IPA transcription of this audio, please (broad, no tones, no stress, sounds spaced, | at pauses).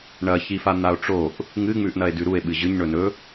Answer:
ɳ ɐ ç i f a n̪ a o̯ ʈ͡ʂ o ʔ | ŋ ɨ ŋ͡m ʉ ʔ n ɐ e̯ d ʉ ɾ u e̯ ɓ ɨ ʑ ɨ ɲ ɳ ɵ n ɵ